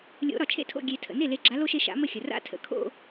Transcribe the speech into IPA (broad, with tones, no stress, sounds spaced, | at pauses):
lʲ o̰˨˦ ɾ ɒ˩ t͡ʃʰ ḛ˥˧ tʰ o̰˥˩ ɡʲ e˨˩˦ tʰ ə̰˩ n e˥˩ l e˨˦ ɡ͡ǁ a˨˦ l o˥ ʃ e˥˧ ʃ a̰˨˦ m ə˥˩ xʲ ə˩ r a̰˥˧ tʰ ə̰˩ kʰ o̰˥˧